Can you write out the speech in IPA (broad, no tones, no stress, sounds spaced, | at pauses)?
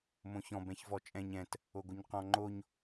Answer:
m õ ç ɔ̃ b ɛ̃ ç v ɔ t͡ʃʼ ɛ̃ ɲ ɛ̃ t | o ɡ o ɲ q ɔ̃ ŋ͡ǃ o ɲ